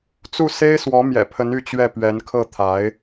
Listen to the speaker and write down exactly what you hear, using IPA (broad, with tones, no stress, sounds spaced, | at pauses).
t͡s u˥˩ s e˥ ɪ̯ s w ɔ˧˥ m j ɛ̰˨˩ pʰ ə˧˥ n y˥˧ t͡ɕ ɥ ɛ˥˩ p ɥ ɛ˧˥ n kʰ ɤ˥˩ t̪ʰ a˧˥ ɪ̯